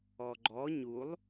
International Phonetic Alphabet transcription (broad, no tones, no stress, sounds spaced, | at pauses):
ɔ ɡ͡ǃ ɔ ɲ u lˠ